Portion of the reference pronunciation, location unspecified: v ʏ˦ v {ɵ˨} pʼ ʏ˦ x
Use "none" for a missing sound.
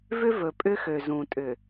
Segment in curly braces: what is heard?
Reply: ɵ˨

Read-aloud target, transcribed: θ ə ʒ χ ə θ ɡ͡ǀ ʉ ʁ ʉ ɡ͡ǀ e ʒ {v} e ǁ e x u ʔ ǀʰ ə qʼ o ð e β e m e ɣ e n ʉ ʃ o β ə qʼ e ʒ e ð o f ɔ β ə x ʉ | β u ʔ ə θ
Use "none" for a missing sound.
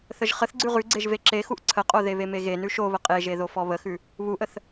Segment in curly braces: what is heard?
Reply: v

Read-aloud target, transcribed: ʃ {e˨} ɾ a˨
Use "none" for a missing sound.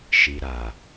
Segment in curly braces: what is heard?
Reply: i˨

